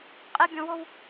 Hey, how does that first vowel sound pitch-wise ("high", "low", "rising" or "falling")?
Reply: high